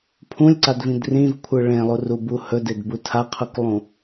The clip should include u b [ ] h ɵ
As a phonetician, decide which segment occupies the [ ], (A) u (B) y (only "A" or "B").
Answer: A